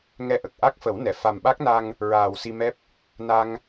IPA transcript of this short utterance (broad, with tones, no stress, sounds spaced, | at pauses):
ŋ ɛ˧ ʔ ə˨˩ k̚ ʔ a˦˥ k̚ f ə˨˩˦ w n ɛ˨˩˨ f a˨˩ m ɓ a˦˥ k̚ n a˧ ŋ | ɹ aː˨˩ w s i˧ m ɛ˦˥ p̚ | n a˧ ŋ